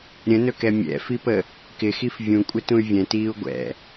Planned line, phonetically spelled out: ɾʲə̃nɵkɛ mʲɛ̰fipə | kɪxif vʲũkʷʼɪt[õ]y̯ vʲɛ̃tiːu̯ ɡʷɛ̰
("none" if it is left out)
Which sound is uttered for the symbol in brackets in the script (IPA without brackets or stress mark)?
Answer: ũ